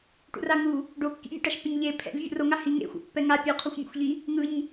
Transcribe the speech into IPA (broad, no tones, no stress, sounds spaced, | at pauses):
ʈ ṵ r a ŋ u | ɖ o kː ḭ mʲ ṵ ʈ a ʃ pː e ɲ ʎ e pʰ ɛ̰ ʎ vʲ ṵ r o ŋ a h i ŋ ḛ xʷ a̰ pː ɛ ŋ a pʲ u qʰ o xʷ mʲ ɛ̰ xʷ ʎ i | ŋ ɯ ɲ